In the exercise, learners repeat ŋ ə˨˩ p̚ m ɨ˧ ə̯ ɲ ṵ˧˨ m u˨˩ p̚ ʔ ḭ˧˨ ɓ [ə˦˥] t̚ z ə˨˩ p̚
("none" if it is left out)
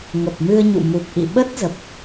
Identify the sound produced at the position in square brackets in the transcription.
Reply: ə˦˥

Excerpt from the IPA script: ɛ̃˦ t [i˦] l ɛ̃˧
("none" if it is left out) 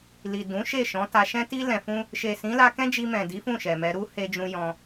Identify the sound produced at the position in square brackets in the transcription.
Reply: i˦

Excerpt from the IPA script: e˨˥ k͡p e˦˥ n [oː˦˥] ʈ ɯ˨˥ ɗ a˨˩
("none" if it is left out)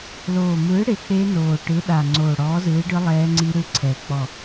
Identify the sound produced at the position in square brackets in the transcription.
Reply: oː˨˩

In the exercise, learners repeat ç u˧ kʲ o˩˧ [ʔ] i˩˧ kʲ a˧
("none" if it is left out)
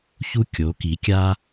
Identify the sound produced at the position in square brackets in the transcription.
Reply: k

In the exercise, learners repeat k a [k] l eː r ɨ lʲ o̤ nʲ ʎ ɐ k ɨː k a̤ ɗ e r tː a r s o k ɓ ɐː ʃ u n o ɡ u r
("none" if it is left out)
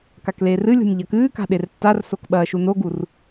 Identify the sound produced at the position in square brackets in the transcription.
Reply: k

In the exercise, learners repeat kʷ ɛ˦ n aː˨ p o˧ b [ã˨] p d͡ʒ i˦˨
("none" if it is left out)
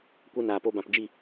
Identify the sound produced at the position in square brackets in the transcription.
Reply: ã˨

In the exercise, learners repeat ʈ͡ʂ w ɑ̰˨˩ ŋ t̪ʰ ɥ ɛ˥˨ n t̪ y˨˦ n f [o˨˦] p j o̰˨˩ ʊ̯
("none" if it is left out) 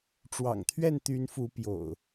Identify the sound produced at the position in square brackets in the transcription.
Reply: u˨˦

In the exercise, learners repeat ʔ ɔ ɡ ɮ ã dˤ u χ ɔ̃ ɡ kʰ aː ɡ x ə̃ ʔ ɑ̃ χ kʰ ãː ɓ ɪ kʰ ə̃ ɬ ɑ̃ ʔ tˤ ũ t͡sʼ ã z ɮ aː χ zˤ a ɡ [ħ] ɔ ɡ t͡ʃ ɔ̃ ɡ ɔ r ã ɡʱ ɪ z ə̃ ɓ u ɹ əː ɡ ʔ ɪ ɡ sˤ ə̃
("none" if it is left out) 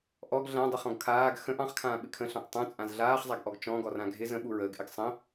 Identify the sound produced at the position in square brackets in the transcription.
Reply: ʔ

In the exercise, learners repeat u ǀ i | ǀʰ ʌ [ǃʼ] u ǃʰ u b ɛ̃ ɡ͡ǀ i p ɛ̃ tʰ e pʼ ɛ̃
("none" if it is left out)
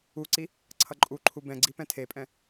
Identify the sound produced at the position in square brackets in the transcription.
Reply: ǃʼ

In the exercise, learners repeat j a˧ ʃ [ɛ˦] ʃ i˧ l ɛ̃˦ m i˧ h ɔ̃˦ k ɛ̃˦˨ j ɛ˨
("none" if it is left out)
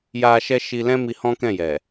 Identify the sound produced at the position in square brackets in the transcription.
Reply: ɛ˦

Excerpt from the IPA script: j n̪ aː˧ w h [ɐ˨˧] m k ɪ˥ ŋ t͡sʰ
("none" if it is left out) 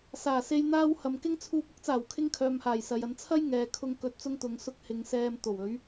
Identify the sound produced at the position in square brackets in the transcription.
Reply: ɐ˨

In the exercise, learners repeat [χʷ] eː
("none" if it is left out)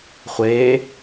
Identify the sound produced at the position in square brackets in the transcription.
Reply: χʷ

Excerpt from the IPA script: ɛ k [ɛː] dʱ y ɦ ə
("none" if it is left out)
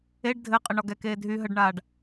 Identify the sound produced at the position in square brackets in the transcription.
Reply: eː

